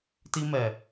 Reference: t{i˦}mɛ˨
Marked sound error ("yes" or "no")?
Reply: no